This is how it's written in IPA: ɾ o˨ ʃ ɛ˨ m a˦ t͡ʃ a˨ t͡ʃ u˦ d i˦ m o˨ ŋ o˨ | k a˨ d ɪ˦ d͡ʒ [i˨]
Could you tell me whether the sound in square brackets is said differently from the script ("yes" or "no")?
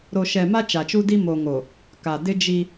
yes